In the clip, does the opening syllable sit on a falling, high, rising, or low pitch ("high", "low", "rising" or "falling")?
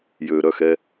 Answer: low